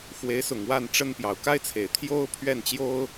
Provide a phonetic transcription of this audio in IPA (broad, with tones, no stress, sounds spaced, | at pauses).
x w e˧˥ ɪ̯ s ʊ˨˩ ŋ w a˥˩ n ʈ͡ʂ ə˥ n p j ɑ˨˩ ʊ̯ k a˥ ɪ̯ t͡sʰ e˨˩ ɪ̯ t̪ʰ j o˥ ʊ̯ pʰ ɥ ɛ˥˩ n t͡ɕ j o˥ ʊ̯